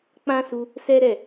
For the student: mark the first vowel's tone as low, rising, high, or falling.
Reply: high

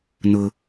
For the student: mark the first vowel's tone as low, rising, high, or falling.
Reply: high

